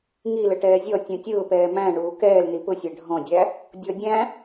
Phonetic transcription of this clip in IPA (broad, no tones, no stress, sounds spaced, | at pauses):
ŋ i l ə ʈ ɛː zʲ ɔ tʲ ũ tʲ ʊː p ɛː m æ̃ ɳ uː k ɛː l n i p ʊ sʲ æ ɖʱ ɔ̃ dʲ æ | dʲ ɔ dʲ æ̃